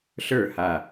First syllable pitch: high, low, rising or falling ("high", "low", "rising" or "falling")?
falling